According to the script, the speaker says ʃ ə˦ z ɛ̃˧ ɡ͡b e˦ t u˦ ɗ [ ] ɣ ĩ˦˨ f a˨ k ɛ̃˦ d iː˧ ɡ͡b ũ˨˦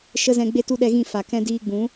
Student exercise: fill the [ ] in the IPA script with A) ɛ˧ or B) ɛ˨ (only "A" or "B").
A